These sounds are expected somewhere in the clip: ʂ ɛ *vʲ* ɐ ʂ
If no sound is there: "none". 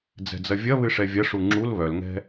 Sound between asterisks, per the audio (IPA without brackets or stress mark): vʲ